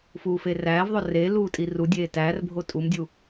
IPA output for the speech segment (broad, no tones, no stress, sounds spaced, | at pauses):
f uː f e r æː v ðˤ o r e l uː tʼ i r u dʲ eː t æː r bʱ o tʼ u m dʲ u